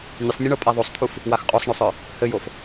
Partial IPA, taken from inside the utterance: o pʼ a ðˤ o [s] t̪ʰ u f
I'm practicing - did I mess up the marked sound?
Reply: yes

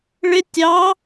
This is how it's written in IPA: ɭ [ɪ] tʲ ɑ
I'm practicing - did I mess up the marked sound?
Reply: no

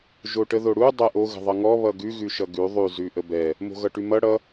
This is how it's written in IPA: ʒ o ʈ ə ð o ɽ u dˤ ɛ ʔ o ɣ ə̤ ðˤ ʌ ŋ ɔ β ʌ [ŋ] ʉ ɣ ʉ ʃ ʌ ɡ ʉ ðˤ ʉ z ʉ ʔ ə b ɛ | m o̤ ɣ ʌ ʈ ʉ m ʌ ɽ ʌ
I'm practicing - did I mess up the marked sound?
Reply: yes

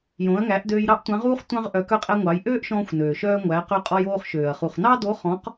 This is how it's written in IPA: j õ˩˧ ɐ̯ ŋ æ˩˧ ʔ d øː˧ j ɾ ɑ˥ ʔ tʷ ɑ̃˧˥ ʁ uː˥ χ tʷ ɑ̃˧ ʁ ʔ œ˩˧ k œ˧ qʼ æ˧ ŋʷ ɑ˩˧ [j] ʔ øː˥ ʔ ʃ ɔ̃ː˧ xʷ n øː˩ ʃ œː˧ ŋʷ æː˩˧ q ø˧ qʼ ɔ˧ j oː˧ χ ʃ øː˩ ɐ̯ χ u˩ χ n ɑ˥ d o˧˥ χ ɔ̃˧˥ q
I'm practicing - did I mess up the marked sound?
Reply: no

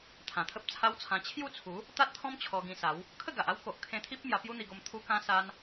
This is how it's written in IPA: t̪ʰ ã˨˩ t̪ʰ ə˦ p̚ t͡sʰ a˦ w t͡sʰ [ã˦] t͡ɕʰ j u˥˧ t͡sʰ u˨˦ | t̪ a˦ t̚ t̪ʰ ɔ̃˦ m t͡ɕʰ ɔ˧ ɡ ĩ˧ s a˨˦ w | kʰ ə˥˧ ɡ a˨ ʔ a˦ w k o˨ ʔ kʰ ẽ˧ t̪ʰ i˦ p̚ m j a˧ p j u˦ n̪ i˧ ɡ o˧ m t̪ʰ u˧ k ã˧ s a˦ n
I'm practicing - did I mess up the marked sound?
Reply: yes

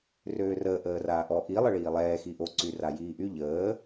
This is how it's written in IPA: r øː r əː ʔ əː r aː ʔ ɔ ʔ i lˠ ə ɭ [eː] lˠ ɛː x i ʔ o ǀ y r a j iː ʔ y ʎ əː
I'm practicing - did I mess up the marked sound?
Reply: yes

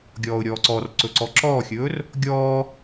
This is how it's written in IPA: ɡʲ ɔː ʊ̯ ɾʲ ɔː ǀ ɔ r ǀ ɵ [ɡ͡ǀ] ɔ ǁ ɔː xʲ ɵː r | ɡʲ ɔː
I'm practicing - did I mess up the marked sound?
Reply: yes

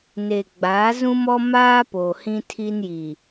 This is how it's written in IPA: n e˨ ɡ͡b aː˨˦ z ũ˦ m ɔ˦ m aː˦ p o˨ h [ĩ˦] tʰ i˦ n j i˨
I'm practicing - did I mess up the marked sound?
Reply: no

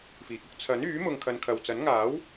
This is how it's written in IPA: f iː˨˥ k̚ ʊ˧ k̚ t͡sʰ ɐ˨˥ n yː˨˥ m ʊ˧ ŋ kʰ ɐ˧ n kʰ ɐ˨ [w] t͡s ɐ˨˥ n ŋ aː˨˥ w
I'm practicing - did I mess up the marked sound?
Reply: no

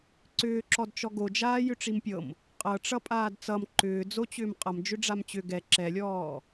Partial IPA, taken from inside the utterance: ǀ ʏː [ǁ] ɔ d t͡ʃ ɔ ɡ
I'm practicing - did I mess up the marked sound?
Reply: no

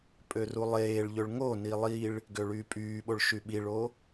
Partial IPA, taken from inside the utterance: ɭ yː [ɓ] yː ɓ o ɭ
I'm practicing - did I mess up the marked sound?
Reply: yes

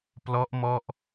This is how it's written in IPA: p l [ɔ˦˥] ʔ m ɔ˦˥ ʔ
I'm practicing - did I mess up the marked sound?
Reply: no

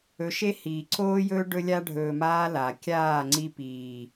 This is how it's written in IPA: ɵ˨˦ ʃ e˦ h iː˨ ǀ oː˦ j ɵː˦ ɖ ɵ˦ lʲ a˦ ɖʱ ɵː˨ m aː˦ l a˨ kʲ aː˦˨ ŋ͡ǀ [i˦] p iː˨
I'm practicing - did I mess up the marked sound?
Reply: no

